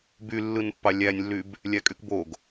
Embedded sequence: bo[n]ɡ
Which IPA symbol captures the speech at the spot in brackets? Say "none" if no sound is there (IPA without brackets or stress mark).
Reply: none